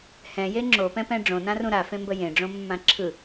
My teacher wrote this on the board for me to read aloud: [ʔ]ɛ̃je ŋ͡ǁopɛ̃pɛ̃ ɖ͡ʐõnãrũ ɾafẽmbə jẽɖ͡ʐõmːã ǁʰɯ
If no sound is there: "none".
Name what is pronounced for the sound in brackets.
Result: h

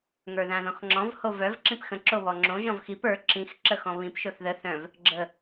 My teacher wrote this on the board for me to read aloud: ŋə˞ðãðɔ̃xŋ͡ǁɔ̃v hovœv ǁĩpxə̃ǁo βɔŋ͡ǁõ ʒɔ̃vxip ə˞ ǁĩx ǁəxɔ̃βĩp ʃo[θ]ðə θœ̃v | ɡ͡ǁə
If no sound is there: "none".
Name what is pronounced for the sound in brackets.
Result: θ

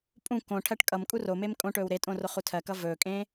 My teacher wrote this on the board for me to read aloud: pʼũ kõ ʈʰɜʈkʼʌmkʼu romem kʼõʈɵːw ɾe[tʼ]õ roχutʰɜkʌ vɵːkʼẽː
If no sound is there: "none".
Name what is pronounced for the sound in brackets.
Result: tʼ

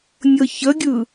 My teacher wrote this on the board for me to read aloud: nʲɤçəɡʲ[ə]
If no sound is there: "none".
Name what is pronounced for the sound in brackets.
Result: ɯ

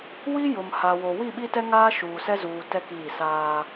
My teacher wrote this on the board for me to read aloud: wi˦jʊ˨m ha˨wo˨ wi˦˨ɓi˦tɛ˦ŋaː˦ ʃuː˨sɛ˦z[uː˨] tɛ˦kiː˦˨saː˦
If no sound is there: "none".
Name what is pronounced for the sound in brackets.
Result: uː˨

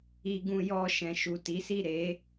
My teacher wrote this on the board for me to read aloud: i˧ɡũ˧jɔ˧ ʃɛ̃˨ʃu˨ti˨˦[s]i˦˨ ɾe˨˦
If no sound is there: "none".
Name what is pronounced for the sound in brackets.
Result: s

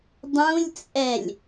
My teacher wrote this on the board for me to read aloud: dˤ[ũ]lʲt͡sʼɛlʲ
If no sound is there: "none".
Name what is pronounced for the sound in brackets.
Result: ũ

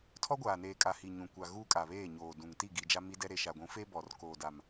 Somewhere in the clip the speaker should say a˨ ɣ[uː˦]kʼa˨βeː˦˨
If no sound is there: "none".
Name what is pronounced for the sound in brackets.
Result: uː˦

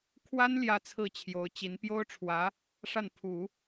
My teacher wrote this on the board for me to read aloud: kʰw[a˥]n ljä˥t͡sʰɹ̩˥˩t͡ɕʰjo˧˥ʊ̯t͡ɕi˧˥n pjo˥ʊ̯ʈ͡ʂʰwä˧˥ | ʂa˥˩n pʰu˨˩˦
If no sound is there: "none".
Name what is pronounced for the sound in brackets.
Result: a˥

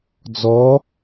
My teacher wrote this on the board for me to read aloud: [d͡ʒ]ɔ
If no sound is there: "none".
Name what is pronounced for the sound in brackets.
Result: d͡z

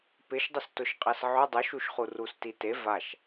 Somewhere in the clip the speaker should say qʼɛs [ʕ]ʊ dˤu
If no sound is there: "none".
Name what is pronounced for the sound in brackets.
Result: ʕ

